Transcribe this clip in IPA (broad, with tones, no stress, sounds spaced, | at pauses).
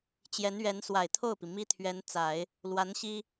t͡ɕ j ɛ˧˥ n ɥ ɛ˧˥ n s w a˨˩ ɪ̯ t̪ʰ o˥˩ ʊ̯ p i˩ m i˥ t̪ʰ ɥ ɛ˧˥ n t͡s a˨˩˦ ɪ̯ | l w a˧˥ n ɕ i˥